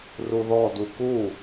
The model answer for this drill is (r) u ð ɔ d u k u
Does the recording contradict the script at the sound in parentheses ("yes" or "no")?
no